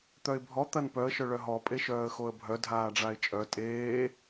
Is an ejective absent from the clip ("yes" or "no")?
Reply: no